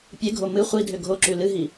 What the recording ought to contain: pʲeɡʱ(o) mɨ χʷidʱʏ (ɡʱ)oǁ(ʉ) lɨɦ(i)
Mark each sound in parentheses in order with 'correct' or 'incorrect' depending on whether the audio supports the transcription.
correct, correct, correct, correct

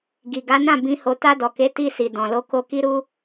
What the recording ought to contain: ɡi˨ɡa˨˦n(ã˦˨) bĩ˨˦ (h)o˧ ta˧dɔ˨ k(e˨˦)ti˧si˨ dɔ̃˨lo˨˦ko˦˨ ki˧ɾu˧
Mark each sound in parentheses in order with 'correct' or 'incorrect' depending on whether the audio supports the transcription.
correct, correct, correct

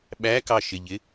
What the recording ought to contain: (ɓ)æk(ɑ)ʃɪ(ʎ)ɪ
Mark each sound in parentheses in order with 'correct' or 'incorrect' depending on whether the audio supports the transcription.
correct, correct, correct

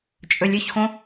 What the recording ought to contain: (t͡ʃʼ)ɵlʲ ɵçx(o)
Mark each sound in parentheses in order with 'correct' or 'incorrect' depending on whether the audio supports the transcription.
correct, incorrect

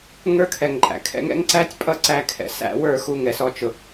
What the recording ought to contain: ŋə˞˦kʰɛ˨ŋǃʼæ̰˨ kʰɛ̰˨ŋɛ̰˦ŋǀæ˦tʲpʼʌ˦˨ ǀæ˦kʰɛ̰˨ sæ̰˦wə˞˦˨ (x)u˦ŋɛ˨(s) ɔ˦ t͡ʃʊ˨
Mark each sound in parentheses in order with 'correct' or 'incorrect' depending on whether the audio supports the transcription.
correct, correct

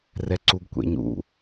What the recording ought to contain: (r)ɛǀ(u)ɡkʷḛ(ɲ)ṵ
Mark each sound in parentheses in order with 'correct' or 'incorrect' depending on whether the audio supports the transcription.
correct, correct, correct

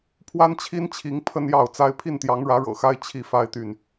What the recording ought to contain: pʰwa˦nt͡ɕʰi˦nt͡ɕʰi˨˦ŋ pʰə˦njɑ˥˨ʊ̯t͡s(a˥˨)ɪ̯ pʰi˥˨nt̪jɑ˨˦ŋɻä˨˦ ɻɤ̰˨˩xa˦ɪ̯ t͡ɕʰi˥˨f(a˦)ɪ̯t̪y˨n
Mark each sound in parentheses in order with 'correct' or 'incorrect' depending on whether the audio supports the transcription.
incorrect, correct

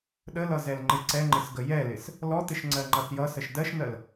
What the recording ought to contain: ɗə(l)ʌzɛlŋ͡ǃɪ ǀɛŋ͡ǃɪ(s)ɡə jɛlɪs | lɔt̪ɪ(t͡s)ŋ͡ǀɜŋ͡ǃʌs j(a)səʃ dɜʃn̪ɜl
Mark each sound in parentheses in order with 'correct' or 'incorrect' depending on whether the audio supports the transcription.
correct, correct, incorrect, incorrect

